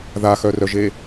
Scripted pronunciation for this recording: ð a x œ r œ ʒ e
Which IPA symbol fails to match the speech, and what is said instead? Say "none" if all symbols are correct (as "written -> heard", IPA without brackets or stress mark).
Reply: none